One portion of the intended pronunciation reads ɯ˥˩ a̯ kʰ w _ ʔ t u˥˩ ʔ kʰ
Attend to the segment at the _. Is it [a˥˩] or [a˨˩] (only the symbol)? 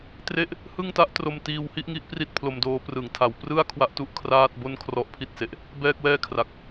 a˥˩